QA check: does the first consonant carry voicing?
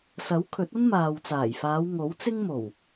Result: no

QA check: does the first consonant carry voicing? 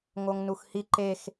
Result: yes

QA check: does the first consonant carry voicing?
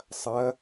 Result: no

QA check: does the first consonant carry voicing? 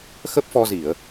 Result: no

